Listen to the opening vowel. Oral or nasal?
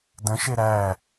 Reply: nasal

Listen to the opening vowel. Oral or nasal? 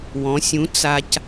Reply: nasal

